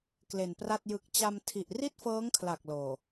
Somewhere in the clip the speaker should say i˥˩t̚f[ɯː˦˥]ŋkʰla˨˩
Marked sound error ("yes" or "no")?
yes